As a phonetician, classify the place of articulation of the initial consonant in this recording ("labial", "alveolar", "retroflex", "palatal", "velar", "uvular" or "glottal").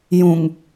palatal